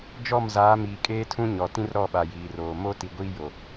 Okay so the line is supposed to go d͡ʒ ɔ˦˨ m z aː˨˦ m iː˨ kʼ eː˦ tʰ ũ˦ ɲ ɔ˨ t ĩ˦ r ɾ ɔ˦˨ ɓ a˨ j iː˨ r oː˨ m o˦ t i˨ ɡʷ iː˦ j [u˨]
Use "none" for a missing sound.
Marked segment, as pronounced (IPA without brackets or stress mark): o˨